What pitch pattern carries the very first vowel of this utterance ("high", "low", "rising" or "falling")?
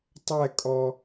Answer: falling